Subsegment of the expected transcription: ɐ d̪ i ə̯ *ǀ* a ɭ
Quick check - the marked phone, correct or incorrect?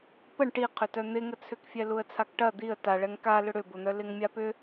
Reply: incorrect